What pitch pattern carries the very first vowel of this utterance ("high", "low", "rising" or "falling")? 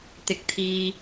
low